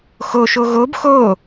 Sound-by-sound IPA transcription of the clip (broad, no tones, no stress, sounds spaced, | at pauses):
x o ʃ o ɣ o b x o